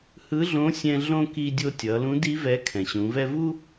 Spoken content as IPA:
h ɯ˧˥ ɮ õ˧˥ sʲ ɛ̃˧ ɮ õ˥ k i˧ dʲ o˧ tʲ ʌ˩˧ l ũ˧˥ d i˧˥ v ɛ˧˥ kʰ ɛ̃˩ ɕ ũ˩˧ v ɛ˥ v u˥

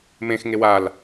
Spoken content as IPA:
m ẽ x ŋ e w a l

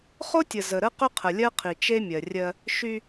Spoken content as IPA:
χ o˦ tʲ ə˨ z ə˨ ɾ ə˦ q ʏ˦ qʰ ə˨ lʲ ɜ˦ qʰ i˨ t͡ʃ e˦ mʲ ɜ˨ rʲ ɜ˦ | ʃ y˦

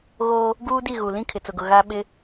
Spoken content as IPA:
ɣ oː˦ | ɡ uː˦ d i˦˨ ɣ u˨ l ĩ˦ kʰ ɪ˨ t͡s ʊ˨ ɡ ʊ˨ ɣ a˦ ɓ ɪ˦

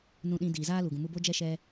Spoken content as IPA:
n ũ˧ ɗ ĩ˧ d iː˨ z aː˦ l u˨ ɡ ũ˨ m u˧ b o˦ d͡ʒ ɛ˦ ʃ ɛ˧

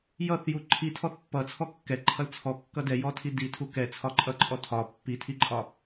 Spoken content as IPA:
j ʌ θ j u ǃʰ i tʰ ɔ θ pː ʌ t͡sʰ ɔ kː ɛ ǃʰ ʌ l t͡sʰ ɔ kː ʌ d ɛ j ɔ tʰ i d i tʰ u k ɛ t͡sʰ ɒ ǃʼ ʌ ǃʼ ɔ tʰ ɒ pː i tʰ i ǃʼ ɒ

